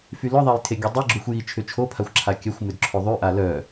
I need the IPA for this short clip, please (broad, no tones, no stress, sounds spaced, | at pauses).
f y l œ ðˤ a j tʰ e ɡʲ u dˤ i ɡ͡ǁ u xʷ j i t͡ʃʰ ʏ t͡ʃʰ o pʰ a xʷ ǁʰ a kʲ œ xʷ m ʏ d ǁʰ o ðˤ y ʔ a l œ